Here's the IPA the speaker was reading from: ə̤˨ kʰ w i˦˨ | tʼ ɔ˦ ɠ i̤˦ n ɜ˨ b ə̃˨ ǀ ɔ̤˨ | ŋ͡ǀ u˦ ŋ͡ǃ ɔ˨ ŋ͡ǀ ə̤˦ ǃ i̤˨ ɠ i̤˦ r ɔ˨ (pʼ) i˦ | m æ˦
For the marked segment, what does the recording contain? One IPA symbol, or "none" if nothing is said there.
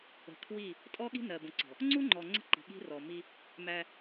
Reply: m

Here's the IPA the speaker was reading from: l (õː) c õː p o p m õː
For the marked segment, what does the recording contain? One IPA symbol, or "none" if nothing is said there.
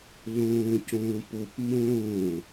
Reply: õː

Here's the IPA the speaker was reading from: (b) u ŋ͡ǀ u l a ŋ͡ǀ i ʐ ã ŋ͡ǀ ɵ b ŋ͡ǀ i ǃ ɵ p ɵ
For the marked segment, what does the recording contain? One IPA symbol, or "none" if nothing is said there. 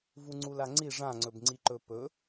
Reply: v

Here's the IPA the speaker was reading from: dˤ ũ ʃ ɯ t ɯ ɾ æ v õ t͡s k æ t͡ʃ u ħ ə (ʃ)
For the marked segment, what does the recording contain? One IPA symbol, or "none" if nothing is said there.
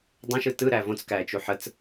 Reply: t͡s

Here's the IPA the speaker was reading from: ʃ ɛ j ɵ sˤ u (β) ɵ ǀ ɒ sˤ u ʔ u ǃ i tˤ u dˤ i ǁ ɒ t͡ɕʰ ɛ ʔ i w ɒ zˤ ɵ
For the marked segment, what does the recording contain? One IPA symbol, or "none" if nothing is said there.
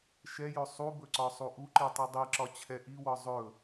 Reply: b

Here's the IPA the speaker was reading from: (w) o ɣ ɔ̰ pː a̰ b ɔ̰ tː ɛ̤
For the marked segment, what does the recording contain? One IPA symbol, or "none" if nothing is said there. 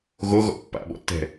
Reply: ɣ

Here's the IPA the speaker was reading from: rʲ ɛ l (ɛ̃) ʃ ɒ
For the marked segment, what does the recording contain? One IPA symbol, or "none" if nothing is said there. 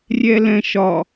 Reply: ɛ̃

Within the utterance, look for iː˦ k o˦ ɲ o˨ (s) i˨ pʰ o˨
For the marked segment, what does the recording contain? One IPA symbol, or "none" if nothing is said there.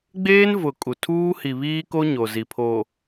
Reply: z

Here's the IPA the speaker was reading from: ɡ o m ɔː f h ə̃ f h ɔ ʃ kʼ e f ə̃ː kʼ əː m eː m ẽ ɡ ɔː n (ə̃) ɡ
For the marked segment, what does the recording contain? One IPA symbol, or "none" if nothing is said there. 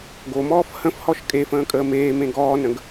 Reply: ə̃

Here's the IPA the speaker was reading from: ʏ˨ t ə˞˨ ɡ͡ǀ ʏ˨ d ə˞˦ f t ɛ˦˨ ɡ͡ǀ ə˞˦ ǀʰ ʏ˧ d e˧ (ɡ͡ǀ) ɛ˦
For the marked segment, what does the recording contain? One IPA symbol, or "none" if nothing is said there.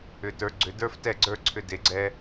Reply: ɡ͡ǀ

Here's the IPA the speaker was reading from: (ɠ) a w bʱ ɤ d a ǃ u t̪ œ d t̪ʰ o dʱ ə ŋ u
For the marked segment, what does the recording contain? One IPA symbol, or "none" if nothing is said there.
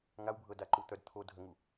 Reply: ŋ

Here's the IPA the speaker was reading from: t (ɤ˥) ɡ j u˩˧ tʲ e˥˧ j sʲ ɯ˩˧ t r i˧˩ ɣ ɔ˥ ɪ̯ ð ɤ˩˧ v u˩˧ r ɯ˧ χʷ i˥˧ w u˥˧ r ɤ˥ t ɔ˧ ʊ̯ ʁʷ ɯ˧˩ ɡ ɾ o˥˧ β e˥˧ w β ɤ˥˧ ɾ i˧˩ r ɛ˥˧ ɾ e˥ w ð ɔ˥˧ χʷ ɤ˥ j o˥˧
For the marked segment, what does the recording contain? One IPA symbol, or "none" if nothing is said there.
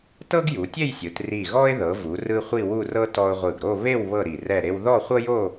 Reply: ɤ˥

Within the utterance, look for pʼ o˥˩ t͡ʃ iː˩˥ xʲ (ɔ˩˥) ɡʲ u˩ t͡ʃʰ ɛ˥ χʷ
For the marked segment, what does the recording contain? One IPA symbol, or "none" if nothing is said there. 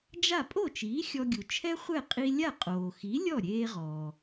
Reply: ɔ˧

